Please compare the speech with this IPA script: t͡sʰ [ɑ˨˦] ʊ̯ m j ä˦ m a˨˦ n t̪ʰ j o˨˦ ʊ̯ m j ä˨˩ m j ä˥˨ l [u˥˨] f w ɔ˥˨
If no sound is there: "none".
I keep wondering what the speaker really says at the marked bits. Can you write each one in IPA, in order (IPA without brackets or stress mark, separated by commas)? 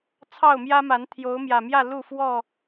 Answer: ɑ˥˨, u˥˨